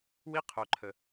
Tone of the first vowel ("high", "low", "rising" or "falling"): high